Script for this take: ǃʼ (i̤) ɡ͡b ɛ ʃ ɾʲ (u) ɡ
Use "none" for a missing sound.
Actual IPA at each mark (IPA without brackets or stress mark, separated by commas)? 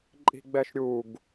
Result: i̤, u